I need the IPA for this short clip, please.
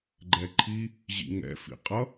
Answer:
ɡ͡ǃ ɛ ǃʰ i | ʑ ḭ ŋ ɛ̰ f ḭ qʼ ʌ

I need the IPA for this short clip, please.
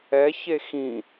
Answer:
ɛ ç e x ĩ

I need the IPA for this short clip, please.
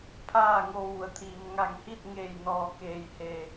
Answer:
pʰ aː˥˨ ŋ o˧ ʋ u˩ ə̯ t̪ʰ iː˩ m ŋ a˧˩ ŋ h i˥˨ t̚ ŋ eː˧˩ j n ɔː˧˩ k eː˧˩ j h e˧˩

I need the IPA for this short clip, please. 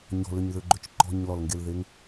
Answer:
ɲ ɔ̤ l ʏ ɲ ð ʏ ɡ͡ǃ ʏ t͡ʃ ǃ ɔ̤ ɲ l ɔ l ŋ ɡ e l ð e ŋ

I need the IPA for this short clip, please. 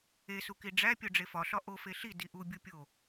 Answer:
e s u k i ɖ͡ʐ æ pʲ o ɖ͡ʐ e f ɒ ɬ ɒ ʔ o f e ɬ i d i ʔ u bʲ u pʲ o

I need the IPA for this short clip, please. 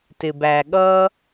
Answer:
t ɪ˩ b æ˩ ɠ ʌ˥

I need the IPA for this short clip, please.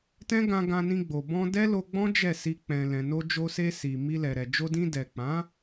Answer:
t ɛ̃˦ ɡ ã˧ ɡ ã˧ n ĩ˧ ɡ͡b o˨ b ɔ̃˧ d ɛ˦ l o˧ ɡ͡b ɔ̃˦ d͡ʒ ɛ˦˨ s i˧ k͡p ɛ̃˨ l ɛ̃˨ n o˧ d͡ʒ o˧ s e˧ s i˨ m i˧ l ɛ˨ ɾ ɛ˨ d͡ʒ o˧ d ĩ˧ d ɛ˨ k͡p ã˨˦

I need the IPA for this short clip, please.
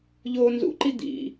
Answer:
ʎ oː n z ṵ ǃ i d̪ ḭ

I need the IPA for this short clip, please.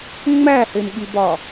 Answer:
ŋ͡m æ h e m ɠ i b ɒ

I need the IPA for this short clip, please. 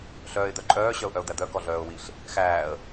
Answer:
ɬ œː ɪ̯ d̪ œ ǃʼ œː ɕ œ ʊ̯ ʔ œ ʊ̯ d̪ æ d̪ œ k ɔ ɮ œː ʊ̯ w i ɬ | x æː ə̯

